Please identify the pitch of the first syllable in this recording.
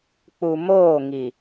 low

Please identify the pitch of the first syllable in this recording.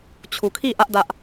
low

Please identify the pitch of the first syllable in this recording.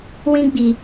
high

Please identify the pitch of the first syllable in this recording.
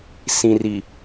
low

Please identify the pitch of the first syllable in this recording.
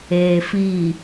low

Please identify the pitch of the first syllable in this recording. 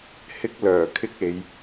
high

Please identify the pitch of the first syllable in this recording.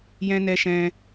high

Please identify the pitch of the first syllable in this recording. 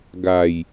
low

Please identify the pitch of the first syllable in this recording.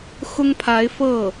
high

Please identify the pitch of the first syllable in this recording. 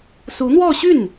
rising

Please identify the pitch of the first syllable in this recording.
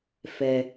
low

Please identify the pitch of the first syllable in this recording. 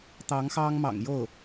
rising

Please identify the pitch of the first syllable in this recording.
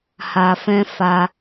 low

